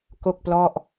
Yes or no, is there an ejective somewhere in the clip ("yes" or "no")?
no